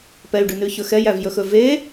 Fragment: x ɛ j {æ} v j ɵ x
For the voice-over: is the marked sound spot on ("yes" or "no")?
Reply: yes